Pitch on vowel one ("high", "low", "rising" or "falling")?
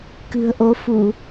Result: low